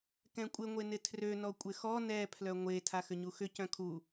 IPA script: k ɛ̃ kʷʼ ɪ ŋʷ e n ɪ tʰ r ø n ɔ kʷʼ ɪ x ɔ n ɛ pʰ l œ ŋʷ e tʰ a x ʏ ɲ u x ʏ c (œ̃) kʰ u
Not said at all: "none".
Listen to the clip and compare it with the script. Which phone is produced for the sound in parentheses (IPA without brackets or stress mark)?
œ̃